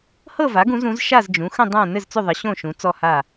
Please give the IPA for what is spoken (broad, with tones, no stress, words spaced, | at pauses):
hɤ˥˨va˩˥ɡũ˩˥z ũ˩˥z ʃa˥˨zd͡ʒũ˩˥xə̃˥˨ dˤã˥˨ nɘ˥˨zt͡sʏ˥˨ðˤə˩˥ ɕõ˥˨ʃũ˩˥ t͡sɔ˥˨ha˥˨